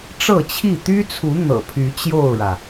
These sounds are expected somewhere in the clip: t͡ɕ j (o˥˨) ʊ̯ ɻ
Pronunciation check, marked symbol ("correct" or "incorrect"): correct